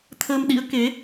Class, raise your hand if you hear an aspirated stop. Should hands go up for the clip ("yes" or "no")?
yes